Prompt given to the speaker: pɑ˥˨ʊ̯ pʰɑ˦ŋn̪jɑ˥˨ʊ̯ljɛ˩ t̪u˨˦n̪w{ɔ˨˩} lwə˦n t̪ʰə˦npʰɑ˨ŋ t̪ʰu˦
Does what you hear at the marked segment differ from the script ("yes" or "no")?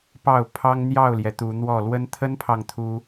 yes